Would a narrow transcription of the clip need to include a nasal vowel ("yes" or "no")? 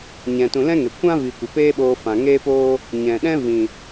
yes